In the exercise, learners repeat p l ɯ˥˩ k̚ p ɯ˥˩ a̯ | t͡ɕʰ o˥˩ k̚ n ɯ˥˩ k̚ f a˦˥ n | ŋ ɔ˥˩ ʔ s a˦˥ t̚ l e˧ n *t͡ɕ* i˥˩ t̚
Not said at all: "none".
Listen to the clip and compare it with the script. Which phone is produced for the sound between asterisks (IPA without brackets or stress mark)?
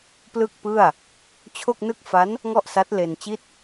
t͡ɕ